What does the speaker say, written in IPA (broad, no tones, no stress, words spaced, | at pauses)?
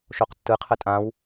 ʃoqtːɯqʰə tʼãw